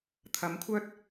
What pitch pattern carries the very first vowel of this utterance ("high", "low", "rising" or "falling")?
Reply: rising